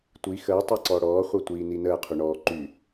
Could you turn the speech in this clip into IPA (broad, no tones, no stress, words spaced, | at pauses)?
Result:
tʷi xəː tˤɤǀɔɽɔː χʷɤtʷiːninəː qʰyɳɔː ǃy